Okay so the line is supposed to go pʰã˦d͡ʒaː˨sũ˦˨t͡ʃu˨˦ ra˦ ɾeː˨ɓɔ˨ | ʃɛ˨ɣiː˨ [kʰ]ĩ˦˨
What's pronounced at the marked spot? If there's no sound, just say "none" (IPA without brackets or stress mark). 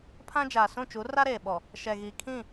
kʰ